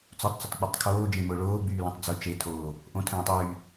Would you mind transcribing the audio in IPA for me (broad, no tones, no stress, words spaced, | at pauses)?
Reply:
t͡sotˤt͡sʊtˤk͡pʊtˤ kʰoːd͡ʒẽmʊː ɭoːɡ͡byːlõtˤ d͡zʊ t͡ʃetʰoː | ʔõtʰə̃ɭõtˤ yː